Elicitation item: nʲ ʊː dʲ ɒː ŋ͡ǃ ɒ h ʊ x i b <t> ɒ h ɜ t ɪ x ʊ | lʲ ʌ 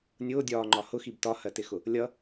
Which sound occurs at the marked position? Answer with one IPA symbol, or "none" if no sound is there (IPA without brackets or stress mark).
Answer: t